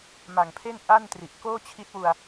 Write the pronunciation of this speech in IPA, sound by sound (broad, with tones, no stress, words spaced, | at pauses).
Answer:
ma˨˩ŋpʰe˥˩n ʔa˥˩ntri˨˩ʔ koː˥˩t͡ɕʰi˦˥t̚wu˧a̯